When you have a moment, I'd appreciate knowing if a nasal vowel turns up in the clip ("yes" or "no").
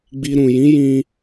yes